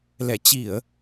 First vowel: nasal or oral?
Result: oral